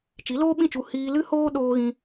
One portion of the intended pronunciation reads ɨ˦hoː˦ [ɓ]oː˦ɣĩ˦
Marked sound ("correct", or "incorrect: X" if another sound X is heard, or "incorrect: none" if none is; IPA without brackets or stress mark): incorrect: ɗ